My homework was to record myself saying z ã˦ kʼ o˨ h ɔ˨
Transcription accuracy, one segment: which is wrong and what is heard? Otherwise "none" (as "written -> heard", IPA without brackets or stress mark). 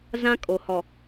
none